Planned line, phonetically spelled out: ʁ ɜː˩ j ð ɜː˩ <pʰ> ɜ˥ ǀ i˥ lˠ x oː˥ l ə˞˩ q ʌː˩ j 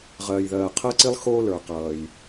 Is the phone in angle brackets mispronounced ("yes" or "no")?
yes